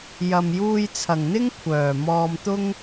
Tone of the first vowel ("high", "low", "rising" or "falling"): low